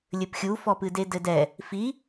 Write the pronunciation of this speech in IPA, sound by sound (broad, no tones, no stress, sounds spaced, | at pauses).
lʲ ɘ p xʲ u f ɔ p ɨ d e d ɘ d ɛ | f i